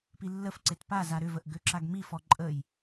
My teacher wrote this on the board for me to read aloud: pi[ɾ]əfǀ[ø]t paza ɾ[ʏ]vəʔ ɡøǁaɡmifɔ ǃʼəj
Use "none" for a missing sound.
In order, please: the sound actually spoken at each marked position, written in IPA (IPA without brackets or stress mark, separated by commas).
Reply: lː, e, ʏ